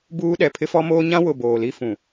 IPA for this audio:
b uː˦ ɗ ɛ˨ pʰ ɪ˦ f ɔ˦ m oː˦ ɲ ã˦ w ʊ˨ b oː˨ l i˦ f ũ˨

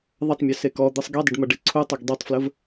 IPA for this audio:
ðˤ ʌ tˤ mʲ ø s e k ɔ d̪ ɯ sˤ ɡ e dˤ ə ɖ m ʌ ɖ e ǀʰ u tˤ ʌ ɡ dˤ ø tˤ f l ə v

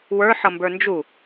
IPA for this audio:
w ə˞ ħ ʌ m b ə˞ n d͡ʒ u

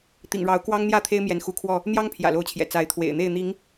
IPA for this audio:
t̪ ḭ˨˩ ŋ ɻ ɑ˨˦ ʊ̯ k w ɑ˦ ŋ n̪ j ä˥˨ t̪ʰ e˦ ɪ̯ m j ɛ˨˦ n x u˨˦ kʰ w ɔ˥˨ | n̪ j ɑ˦ ŋ pʰ j ä̰˨˩ l o˨˦ ʊ̯ t͡ɕʰ j ɛ̰˨˩ t͡s a˨˦ ɪ̯ t̪ʰ w ḛ˨˩ ɪ̯ n̪ e˥˨ ɪ̯ n̪ i˨˦ ŋ

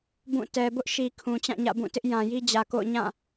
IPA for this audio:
b ũ˦˨ t ɛ˨ b ʊ˦ ʔ ʃ i˨ kʰ ũ˨ t͡ɕ ã˦˨ ɲ ä̰˦˨ b ũ˦˨ t ɪ˦ ʔ j ã˨ j i˦ d͡ʑ ä˨ k o̰˦˨ ʊ̯ ɲ ã˦˨

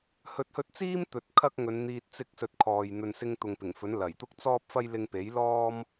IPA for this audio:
h ɵ˨ t̚ h ɵ˧ t̚ t͡s iː˥ m t̪ ɵ˨˥ t̚ kʰ ɐ˥ k̚ ŋ ɵ˨˧ n n̪ iː˧ t̚ t͡s ɪ˥ k̚ s ɵ˧ t̚ kʰ ɔː˨ j n̪ ɵ˨ n s ɪ˥ ŋ t̪ ʊ˨ ŋ p ɪ˨˩ ŋ f ɵ˨˥ n l ɐ˨˩ j t̪ ʊ˥ k̚ t͡s ɔː˥ p̚ f ɐ˥ j l ɪ˧ ŋ p e˨˥ j l ɔː˥ m

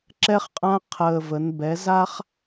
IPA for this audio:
ǁ ɛ˦ χ qʼ ã˦ qʰ əː˨˩ v ə˩˧ n b ɛ˩˧ z a˦ χ

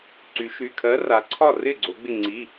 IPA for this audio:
ǀ y˩˧ ʃ y˩˧˩ kʰ ɜ˨˥ r a˩˧ ǀʰ ɒ˥˩ r ɪ˥˩ ɡ͡ǀ o˩˧ ɡ͡b ɪ˧˩ ŋ͡ǀ i˩˧˩

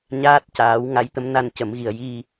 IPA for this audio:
ɲ aː˦˥ t̚ c aː˨˩˦ w ŋ a˧˥ j t̪ ə˧˥ m n a˧ n c ə˨˩˦ m ɣ i˨˩ ə̯ j i˧

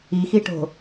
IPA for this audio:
i x i ʈ o̤

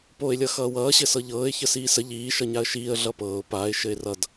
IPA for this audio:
p oː ɪ̯ lʲ ʌ x ʌː w ʌː ɕ ɘ s ɤ ʎ ɤː ɪ̯ ç ə s iː s ə ʎ iː ʃ ʌ ɲ a ə̯ ʃ iː ə̯ ɮ ʌ p ɤː ʊ̯ p a ɪ̯ ʃ ɘ ɪ̯ r ʌ d

